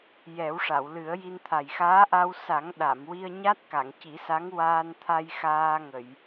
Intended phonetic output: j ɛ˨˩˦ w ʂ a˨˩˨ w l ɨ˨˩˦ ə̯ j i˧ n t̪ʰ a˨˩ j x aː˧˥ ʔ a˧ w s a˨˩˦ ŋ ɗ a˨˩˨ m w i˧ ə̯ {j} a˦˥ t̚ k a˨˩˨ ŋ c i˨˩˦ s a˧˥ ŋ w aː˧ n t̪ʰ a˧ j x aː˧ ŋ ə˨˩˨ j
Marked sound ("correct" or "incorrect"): incorrect